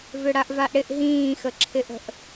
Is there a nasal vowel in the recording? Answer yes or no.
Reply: yes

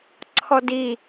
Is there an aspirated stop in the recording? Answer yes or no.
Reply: yes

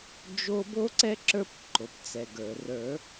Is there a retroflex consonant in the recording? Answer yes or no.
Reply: no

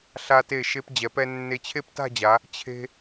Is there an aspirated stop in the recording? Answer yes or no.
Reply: yes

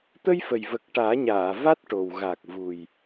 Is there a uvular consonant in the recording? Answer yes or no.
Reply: no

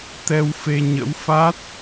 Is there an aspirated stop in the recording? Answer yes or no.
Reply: no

